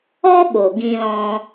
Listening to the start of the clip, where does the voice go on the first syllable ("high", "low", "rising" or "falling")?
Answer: high